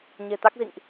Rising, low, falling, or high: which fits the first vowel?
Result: low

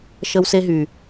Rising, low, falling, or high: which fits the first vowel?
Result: high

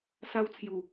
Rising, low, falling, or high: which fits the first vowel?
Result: high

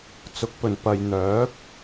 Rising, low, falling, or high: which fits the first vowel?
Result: rising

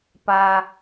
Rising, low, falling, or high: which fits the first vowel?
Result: low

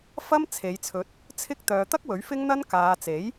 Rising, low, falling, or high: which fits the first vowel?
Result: high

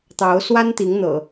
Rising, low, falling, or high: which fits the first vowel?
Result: rising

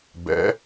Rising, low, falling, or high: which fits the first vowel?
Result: rising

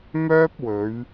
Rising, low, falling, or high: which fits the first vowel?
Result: high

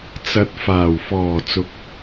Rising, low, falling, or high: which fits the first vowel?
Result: rising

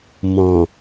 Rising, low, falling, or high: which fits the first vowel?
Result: low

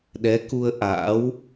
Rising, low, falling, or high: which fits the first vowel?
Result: rising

